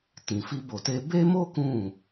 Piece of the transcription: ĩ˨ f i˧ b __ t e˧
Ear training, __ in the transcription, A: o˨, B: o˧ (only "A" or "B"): A